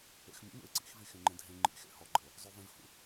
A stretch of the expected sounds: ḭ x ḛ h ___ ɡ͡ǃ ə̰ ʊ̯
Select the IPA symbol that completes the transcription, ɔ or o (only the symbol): ɔ